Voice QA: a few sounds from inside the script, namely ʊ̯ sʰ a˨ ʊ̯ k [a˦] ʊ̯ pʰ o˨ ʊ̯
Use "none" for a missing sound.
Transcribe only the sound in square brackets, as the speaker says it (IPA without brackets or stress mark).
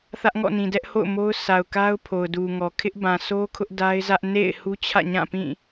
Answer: a˦